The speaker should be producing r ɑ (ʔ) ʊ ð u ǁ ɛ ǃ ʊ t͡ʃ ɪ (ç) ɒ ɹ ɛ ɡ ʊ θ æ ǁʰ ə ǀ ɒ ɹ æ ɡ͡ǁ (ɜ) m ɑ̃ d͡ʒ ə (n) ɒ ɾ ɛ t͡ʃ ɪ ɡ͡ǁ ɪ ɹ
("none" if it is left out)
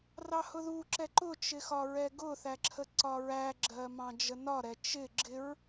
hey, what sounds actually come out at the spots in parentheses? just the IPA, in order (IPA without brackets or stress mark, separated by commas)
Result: h, x, ɜ, n